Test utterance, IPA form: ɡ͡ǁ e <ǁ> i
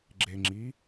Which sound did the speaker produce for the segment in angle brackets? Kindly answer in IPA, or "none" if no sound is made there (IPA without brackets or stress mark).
ŋ͡ǁ